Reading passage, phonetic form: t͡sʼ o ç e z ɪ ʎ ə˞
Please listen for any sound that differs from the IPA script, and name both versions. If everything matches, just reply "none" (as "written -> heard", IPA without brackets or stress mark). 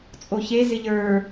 none